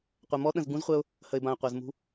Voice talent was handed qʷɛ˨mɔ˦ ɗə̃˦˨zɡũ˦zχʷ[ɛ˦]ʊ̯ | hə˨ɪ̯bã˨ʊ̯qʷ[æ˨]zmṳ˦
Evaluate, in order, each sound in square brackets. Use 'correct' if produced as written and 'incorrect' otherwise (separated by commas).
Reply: correct, correct